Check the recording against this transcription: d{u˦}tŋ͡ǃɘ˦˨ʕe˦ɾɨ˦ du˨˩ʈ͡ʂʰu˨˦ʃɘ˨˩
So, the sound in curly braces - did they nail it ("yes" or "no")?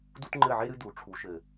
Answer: yes